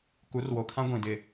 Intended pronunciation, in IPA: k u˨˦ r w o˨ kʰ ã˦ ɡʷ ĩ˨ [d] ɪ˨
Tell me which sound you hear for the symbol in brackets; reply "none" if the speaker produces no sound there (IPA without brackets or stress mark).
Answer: d